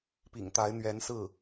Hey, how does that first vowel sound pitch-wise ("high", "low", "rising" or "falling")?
low